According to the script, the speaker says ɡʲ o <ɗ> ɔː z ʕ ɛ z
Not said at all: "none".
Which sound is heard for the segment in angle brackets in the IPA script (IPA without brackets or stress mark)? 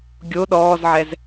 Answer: ɗ